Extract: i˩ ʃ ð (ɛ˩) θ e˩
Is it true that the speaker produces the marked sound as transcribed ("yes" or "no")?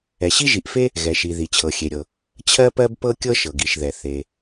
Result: yes